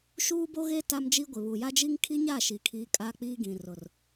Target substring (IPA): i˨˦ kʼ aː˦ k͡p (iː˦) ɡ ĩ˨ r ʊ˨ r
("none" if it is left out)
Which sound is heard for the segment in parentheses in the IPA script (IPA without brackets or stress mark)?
iː˦